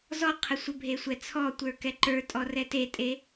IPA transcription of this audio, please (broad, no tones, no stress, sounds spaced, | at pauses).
z ɔ qʰ ə sʷ ə bʱ e sʷ ɛ t͡sʰ ɔ tʷ ə˞ k ɛ ǃ ə˞ tʼ ɔ r ɛ t e tʼ e